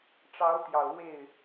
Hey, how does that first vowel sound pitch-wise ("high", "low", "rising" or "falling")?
rising